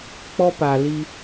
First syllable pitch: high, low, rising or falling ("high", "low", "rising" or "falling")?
high